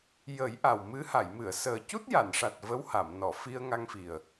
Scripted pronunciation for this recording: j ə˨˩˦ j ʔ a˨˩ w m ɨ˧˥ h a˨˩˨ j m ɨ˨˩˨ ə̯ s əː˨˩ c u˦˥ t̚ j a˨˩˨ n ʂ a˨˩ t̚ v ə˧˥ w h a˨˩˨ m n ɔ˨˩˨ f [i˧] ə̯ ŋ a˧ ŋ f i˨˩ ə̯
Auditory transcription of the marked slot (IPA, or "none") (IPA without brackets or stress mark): i˧